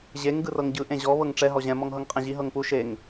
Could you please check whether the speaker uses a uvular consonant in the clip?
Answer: yes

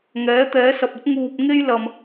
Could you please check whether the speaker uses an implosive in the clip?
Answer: no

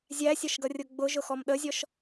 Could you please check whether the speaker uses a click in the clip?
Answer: no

